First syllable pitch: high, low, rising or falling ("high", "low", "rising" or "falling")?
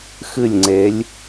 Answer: falling